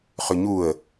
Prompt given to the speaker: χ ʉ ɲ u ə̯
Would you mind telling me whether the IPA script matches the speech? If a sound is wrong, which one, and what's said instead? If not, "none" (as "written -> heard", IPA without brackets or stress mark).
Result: none